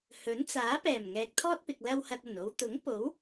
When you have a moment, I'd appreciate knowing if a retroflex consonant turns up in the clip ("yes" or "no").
no